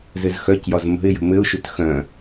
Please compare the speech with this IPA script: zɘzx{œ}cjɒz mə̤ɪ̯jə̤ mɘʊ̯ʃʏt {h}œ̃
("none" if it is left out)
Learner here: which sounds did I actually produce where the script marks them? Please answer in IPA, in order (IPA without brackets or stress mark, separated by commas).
œ, x